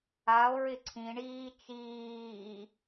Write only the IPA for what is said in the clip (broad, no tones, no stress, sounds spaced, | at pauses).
a o̯ ɹ ɪ ǀʰ ĩ ɳ iː t͡ʃ iː